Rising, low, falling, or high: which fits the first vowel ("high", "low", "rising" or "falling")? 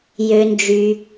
low